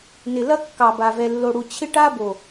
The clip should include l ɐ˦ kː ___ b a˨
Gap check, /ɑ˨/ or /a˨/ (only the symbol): ɑ˨